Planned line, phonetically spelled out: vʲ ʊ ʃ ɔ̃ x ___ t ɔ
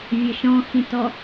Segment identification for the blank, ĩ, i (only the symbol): ĩ